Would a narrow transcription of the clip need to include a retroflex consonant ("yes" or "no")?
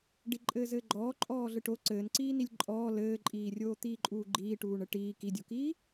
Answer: yes